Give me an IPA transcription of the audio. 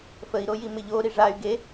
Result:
fəi̯ɾoji mɪʎo ɾiʐay̯ ɡe

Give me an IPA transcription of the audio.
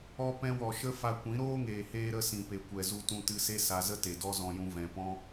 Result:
ɔ˧ pɛ̃˧wɔ˨ ʃə˦ fa˧kʷĩ˨˦ ɾoː˦ŋeː˨heː˧ɾə˧ sĩ˨pe˨kʷɛ˨ zu˧tũ˧tɨ˧se˦ sa˧zə˦ te˨dɔ˦ zɔ̃˧jũ˧ vɛ̃˨pɔ̃˦

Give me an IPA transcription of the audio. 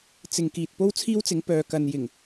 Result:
t͡sɪ˨ŋ kiː˨t̚po˥wt͡sʰiː˥wt͡sɪ˨˥ŋ pœː˨kɐ˨n jɪ˨˩ŋ

